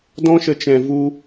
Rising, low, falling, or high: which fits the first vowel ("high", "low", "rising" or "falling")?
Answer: high